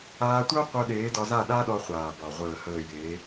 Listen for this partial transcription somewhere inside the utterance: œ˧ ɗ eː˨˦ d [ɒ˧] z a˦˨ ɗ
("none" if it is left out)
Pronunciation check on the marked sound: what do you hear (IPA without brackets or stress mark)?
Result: ɒ˧